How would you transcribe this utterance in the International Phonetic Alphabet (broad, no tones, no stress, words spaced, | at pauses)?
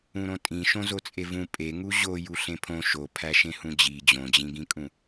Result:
ũɾõtʼĩʃõ zot͡sʼevũ pʼe ŋuʑo juɬẽpʰõ ʃopʰæ ʃẽhũd͡ʑi d͡ʑõd͡ʑĩɡĩkʼũ